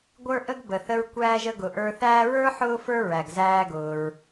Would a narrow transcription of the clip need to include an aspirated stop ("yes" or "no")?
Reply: no